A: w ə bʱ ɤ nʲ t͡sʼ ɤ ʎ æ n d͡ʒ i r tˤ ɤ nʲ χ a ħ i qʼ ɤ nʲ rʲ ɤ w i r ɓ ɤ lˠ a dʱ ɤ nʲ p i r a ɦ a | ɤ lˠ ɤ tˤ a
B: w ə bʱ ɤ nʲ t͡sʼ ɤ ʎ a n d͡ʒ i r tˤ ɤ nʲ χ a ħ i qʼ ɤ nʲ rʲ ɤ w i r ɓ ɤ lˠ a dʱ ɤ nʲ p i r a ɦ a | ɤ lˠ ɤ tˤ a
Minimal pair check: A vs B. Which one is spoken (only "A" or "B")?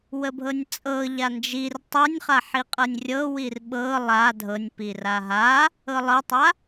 B